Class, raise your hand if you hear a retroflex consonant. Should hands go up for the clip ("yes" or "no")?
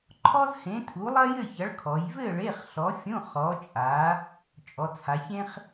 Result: yes